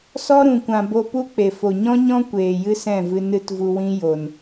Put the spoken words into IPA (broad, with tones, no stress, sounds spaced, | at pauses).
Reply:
s ɔ˦ ɾ ũ˨ kʷ ã˨ b o˧ p u˦ k͡p e˨ f o˨ ɲ ɔ̃˦ ɲ ɔ̃˦ kʷ eː˨ j ɨ˦ s ɛ̃˦˨ v ɨ˧ n ɨ˦ t v u˧ w ĩ˦ j o˨ n